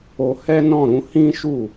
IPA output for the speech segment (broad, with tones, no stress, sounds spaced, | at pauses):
o˧ h ɛ˦ n ɔ̃˦˨ ɾ ũ˧ h ĩ˦ ʃ u˦˨